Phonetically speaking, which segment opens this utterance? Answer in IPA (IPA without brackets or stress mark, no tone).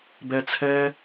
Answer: b